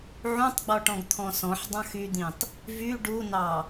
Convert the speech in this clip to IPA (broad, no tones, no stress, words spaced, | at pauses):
ʕũtˤɡ͡bɔʈɔ̃ɡ t̪ʰɔ̃sɔ̃ħdˤɑ̃x yd̪ĩtˤ | vy ɖunɑ